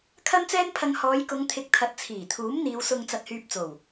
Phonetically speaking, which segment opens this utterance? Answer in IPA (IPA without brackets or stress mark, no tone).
kʰ